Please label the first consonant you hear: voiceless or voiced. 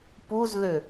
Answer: voiceless